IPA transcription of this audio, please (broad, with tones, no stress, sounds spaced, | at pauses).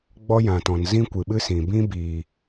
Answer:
ɡ͡b ɔ˦ j ã˨ t ɔ̃˨ n z ĩ˦ kʷ ɨ˨ ɓ ɨ˦ s ĩ˨ b ĩ˦ b iː˨